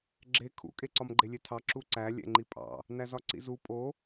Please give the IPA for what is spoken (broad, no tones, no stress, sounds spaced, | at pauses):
ɡ͡ǁ e kʰ ṵ kʼ e ǀ ɒ m ɡ͡ǃ e lʲ e tʰ ɑ ǁ u ǀ æ lʲ ɛ̰ ŋ͡ǃ i pʼ ɑ̰ | n æ z ɒ ǀ ḭ z u pʼ o